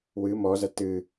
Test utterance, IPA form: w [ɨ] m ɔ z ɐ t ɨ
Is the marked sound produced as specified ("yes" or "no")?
yes